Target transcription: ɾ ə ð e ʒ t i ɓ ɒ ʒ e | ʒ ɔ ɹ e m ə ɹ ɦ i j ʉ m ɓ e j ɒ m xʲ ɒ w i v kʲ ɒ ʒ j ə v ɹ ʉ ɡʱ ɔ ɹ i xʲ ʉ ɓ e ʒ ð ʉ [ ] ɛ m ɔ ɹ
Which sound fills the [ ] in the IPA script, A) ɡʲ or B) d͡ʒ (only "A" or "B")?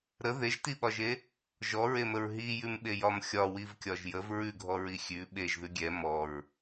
A